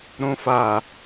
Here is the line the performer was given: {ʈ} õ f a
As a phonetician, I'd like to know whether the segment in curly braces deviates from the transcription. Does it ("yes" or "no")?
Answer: yes